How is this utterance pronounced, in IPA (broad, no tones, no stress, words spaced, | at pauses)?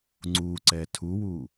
ŋ͡ǀu ǀɛtʰuwu